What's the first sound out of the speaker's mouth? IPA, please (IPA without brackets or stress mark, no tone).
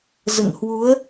z